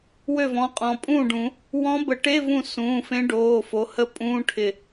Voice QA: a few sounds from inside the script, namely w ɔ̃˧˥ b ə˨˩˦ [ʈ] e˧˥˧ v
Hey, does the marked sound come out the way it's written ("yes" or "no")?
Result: yes